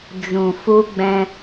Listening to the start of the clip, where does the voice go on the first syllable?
low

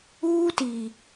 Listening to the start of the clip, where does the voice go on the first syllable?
high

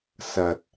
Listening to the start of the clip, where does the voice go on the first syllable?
low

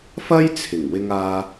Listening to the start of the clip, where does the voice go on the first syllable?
high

